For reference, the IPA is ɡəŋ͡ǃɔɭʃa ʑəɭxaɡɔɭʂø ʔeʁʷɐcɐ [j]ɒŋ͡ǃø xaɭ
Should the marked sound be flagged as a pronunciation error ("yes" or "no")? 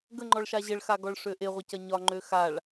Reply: yes